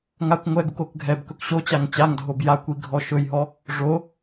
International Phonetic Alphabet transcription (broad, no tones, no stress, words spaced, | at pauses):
ŋakʷ ŋʷɛɡuk okɡʱɛbkɵk ɕot͡ɕaŋ t͡ɕaŋdʱob jakʷi ɡʱɔʃɵjɦɔ | ʐo